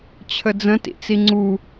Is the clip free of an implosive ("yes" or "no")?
yes